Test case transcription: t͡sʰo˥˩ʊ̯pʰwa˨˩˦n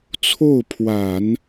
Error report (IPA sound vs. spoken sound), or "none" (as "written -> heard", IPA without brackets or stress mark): none